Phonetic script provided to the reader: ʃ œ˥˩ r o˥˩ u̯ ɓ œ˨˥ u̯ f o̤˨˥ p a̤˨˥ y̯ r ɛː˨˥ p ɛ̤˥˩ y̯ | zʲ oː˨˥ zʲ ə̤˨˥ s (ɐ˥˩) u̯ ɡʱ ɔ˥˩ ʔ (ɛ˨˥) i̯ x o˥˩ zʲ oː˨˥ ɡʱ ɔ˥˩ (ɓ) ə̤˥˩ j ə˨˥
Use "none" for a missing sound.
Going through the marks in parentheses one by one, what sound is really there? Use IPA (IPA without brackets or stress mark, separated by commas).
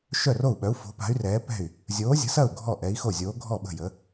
ɐ˥˩, ɛ˨˥, ɓ